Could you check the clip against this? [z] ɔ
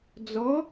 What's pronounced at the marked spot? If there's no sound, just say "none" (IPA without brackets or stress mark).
d͡z